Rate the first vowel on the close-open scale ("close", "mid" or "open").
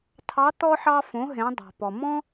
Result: open